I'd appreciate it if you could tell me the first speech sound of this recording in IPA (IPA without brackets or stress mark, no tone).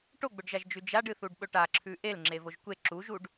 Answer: ʈ